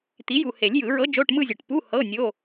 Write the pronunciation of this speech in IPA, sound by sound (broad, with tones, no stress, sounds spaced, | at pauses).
t̪ i˩˥ j u˨ h e˨˩˦ lʲ j ɯ˨˩˦ ɹ ɤ˧˥ d͡ʒ o˧˥˧ ʈ m ɯ˥˧ zʲ o˨ ʈ p u˧˥˧ h ɤ˧˥˧ nʲ o˧˥˧